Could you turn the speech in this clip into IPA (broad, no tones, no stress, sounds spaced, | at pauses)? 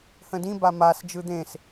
h ə̃ d ĩ b a m a s d͡ʒ ɯ d̪ ẽ s